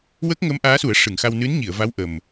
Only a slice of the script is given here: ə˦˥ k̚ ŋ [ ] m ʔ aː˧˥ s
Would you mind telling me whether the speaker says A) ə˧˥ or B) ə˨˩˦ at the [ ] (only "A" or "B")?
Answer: A